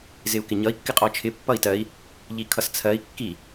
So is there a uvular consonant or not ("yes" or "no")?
yes